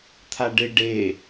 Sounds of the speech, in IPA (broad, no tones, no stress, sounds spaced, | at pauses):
t̪ʰ a ɖ ɪ ɖ e